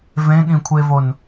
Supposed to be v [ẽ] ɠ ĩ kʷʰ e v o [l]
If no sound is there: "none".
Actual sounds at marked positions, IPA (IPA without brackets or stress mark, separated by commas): ẽ, n